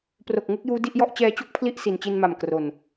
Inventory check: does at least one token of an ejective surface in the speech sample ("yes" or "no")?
no